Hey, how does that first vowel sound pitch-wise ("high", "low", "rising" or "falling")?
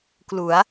rising